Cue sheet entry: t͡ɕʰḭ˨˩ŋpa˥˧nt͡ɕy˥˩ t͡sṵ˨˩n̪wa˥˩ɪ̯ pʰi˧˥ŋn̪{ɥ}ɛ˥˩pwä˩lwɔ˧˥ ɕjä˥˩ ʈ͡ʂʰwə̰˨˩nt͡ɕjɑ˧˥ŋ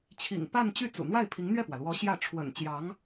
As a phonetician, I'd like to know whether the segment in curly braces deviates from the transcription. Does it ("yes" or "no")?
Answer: no